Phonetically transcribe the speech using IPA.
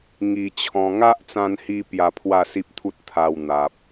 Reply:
ŋ i˧ t͡ɕʰ ɔ̃˧ ŋ a˦ ʔ t͡s ã˧ n h i˧ p j a˧ pʰ w a˥˧ s i˦ p̚ t̪ʰ u˦ t̚ t̪ʰ a˧ w n̪ a˨ p̚

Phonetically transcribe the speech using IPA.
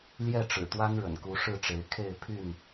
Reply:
l j ɛ˥˨ ʈ͡ʂ ɻ̩˨˩ t̪ w a˦ n ɻ ə̰˨˩ n k u˨˦ ʂ ɻ̩˥˨ ʈ͡ʂ e˨˦ ɪ̯ kʰ e˥˨ ɪ̯ pʰ y˥˨ n

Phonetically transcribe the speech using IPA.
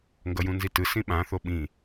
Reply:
ŋ ɡ ʌ j ũ n z i t ɯ s ĩ ɓ ã θ o ɓ ĩ

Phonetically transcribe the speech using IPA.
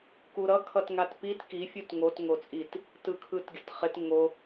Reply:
k u ɾ ʌ kʰ ʌ t ŋ a t p i t k i fʲ u t ŋ o t ŋ o t͡sʼ i t | t ɯ kʰ ɯ t ɡʲ ʌ t χ ɪ t ŋ o

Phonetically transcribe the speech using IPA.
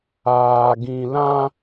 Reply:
aː˨ ɡ ĩ˨ l ã˦

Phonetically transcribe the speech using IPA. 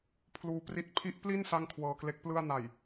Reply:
pʰ l uː˦˥ p r i˦˥ t̚ pʰ i˦˥ ʔ p l i˥˩ n s a˥˩ ŋ kʰ w ɤː˧ k l e˦˥ k̚ p l ɯ˥˩ a̯ n a˨˩ j

